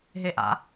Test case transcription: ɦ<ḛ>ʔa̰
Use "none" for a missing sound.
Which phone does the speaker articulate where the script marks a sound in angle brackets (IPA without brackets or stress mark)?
e